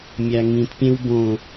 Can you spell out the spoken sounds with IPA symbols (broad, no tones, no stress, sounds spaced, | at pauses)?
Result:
mʲ æ ŋ ĩ t pʲ ẽ w b õ